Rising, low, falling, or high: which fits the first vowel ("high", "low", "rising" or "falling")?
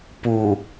low